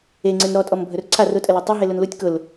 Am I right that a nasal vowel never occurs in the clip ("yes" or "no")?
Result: yes